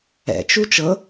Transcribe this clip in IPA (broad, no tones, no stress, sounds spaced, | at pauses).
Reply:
ɛ̰ t͡ʃ u t͡ʃ ɤ